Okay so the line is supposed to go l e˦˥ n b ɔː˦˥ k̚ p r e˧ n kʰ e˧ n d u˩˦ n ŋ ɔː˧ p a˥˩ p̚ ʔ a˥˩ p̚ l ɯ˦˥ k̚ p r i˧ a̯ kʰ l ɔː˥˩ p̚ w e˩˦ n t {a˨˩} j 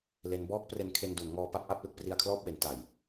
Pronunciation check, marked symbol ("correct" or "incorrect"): correct